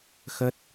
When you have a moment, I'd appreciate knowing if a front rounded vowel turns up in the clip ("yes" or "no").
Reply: no